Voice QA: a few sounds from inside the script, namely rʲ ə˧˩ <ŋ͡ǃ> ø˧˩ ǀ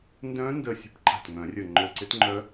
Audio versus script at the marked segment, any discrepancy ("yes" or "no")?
no